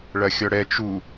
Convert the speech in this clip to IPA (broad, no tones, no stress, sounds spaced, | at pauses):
ɭ ɐ xʲ ɔ ɽ ɛ t͡ʃ u